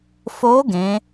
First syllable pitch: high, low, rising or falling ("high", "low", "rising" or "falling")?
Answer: rising